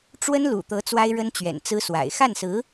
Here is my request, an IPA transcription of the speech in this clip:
ʈ͡ʂ w ə˥ n l ṵ˨˩ t̪ ɤ˧˥ t͡s w a˥ ɪ̯ ɻ ə˥ n t͡ɕ ɥ ɛ̰˨˩ n t͡s ɹ̩˥ s w a̰˨˩ ɪ̯ x a˥˩ n s ɹ̩˧˥

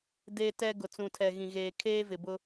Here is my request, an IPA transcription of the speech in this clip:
d e˦ t ɛ˦ ɡ ʊ˨ t͡s ũ˨ tʰ ɛ˨ ɣ ĩ˨ ɣ eː˨ kʰ eː˦ v ɪ˨ b ʊ˦

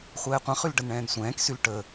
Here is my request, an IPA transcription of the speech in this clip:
χʷ ɛː qʷ ã χ y l ɖ ə n ɳ ɛ̃ː n sʷ ɛ̃ː k s y l ʈ ə

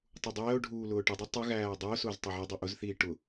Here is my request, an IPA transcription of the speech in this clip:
tˤ u dˤ ɛː o̯ ɖʱ uː l ʊː ʈ ə dˤ ʊ tˤ ʊ ɣ æː dˤ ʊː s ʊː z tˤ ɛ ʕ ɛ dˤ i ʔ ʊ z θ iː ʈ ʊ

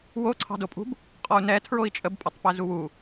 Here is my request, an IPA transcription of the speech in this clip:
w o ǀʰ ɑ̤ d o pʼ ṳ b | qʼ ɔ u̯ n ɛ tʰ ɹ o i̯ t͡ʃʼ ə b pʼ ə tˤ p ɛ z u w u

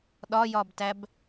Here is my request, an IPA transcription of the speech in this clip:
ɗ ɒ j ɒ b t æ b

